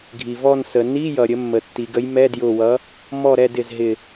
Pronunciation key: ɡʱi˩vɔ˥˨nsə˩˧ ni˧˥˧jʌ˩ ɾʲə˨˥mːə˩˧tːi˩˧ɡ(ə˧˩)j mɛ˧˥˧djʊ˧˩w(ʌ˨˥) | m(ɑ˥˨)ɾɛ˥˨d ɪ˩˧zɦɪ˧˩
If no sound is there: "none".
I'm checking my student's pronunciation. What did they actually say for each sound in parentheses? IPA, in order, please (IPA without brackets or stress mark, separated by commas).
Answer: ə˨˥, ʌ˨˥, ɔ˥˨